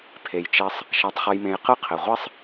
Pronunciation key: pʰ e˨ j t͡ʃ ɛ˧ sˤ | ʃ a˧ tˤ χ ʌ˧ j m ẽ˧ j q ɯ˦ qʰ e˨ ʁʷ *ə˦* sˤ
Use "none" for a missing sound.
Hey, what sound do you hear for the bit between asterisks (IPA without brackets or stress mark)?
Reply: ɛ˦